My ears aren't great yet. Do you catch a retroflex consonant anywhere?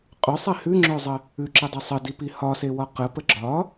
no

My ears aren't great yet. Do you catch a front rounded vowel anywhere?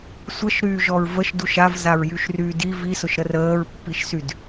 yes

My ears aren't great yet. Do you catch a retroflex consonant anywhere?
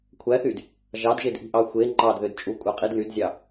no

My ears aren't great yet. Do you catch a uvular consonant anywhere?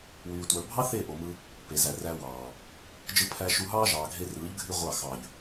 yes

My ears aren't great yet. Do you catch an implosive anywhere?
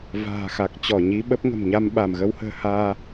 yes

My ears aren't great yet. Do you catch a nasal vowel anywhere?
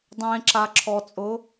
yes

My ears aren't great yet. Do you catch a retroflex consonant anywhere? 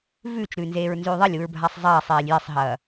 no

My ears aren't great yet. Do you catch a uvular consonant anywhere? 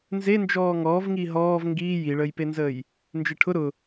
no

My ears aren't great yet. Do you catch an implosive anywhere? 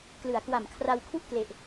no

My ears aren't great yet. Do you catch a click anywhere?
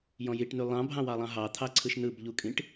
yes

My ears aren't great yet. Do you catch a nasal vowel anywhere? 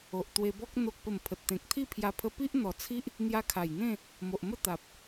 yes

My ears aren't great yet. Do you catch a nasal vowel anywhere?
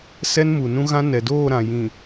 yes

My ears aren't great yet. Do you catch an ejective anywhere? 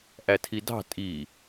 yes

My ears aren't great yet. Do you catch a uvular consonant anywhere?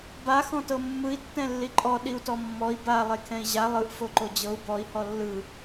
no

